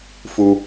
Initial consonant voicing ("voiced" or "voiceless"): voiceless